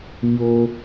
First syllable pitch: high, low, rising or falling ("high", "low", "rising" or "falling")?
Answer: high